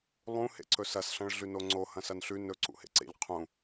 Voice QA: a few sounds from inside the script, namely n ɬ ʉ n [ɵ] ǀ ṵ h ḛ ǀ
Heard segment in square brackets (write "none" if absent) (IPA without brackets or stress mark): ɵ